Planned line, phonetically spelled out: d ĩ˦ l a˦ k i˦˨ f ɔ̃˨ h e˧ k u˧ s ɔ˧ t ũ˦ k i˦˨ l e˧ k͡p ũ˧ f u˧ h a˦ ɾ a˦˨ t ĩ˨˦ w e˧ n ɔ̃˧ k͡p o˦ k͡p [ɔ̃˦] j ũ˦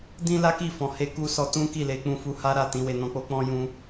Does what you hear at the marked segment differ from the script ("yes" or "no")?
no